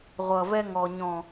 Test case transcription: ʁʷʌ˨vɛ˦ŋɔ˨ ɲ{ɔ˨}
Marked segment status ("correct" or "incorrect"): incorrect